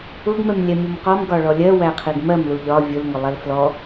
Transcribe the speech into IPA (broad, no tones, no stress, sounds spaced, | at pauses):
ʊ ɡ m ɛ m lʲ ɛ mʲ ʊ m q ɔ m ɡ ɒ ɭ ɔ lʲ ɜ w æ qʰ i ɡ m ɜ m l u ʎ ɒ vʲ ʊ l ŋ ʊ lˠ ɛ l f l ɔ